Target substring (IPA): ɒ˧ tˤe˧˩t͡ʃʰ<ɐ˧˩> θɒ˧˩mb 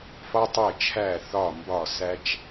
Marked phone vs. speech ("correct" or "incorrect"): incorrect